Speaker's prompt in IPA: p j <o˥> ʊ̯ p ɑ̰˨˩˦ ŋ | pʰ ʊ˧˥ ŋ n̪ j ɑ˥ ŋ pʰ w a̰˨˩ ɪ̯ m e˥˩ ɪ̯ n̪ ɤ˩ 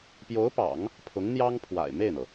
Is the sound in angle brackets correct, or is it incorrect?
incorrect